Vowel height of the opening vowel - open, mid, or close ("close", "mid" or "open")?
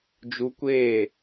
close